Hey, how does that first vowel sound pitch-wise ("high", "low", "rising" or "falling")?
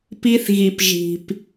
high